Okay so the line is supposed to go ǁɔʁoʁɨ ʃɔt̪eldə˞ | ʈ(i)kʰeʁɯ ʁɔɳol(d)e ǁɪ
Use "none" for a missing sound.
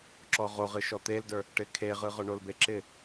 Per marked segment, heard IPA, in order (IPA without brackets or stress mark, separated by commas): ɪ, b